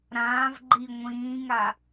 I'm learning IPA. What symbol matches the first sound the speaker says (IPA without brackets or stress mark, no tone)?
ɾ